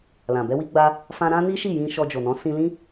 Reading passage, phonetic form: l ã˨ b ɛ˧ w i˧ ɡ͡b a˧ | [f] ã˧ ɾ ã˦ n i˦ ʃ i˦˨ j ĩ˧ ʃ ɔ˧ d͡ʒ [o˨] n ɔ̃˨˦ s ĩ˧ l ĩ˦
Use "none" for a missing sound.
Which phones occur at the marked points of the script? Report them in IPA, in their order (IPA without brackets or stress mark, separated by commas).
f, o˨